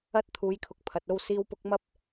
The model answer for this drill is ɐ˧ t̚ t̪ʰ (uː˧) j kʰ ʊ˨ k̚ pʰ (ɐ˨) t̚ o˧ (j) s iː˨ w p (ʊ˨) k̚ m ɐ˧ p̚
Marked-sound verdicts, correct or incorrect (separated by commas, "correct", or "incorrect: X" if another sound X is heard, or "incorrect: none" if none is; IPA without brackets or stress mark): incorrect: uː˨˧, correct, incorrect: w, correct